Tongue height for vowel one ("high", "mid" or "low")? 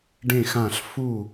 mid